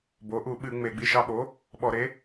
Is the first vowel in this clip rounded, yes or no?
yes